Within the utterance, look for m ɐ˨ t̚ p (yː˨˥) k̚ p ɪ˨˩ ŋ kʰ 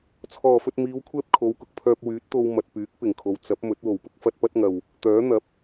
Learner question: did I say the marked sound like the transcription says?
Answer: yes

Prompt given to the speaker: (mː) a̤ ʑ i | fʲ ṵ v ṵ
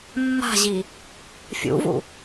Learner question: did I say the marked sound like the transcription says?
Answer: yes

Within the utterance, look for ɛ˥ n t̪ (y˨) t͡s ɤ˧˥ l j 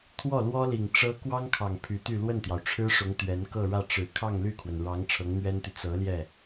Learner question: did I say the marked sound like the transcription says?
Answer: yes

